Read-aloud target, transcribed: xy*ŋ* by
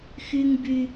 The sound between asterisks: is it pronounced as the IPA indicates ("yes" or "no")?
yes